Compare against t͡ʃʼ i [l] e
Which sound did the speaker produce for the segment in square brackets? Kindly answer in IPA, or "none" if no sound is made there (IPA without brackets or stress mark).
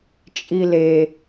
l